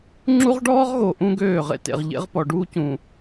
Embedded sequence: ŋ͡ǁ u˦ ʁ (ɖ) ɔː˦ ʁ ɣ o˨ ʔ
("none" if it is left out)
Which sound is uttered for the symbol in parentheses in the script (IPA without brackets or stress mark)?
ɖ